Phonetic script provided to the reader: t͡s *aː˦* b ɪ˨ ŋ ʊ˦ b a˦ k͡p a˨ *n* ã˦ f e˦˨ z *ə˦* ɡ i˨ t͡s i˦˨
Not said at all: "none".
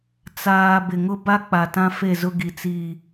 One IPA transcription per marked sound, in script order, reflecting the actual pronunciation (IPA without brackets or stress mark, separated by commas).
aː˨, t, ʊ˦